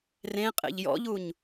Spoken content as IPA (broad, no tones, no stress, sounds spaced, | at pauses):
r ẽ qʼ ḛ ʎ j ɔ̰ ʎ u ɲ